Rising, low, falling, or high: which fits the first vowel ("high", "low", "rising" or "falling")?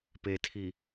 low